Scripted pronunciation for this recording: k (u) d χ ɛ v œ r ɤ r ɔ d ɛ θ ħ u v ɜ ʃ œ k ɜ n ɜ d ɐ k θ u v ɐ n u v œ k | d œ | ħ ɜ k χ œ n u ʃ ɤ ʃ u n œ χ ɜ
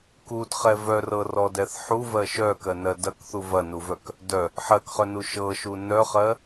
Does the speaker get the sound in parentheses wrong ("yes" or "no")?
no